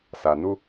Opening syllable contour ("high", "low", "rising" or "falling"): low